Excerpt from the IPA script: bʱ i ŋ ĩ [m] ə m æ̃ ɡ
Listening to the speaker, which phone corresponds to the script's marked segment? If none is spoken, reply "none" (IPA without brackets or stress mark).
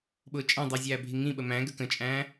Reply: ɓ